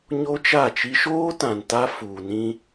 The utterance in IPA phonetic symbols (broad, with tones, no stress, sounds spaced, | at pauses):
ɲ o˦ t͡ʃ a˦˨ t͡ʃ i˦ ʃ oː˦ t ã˨ n t a˦ f uː˨ n ĩ˦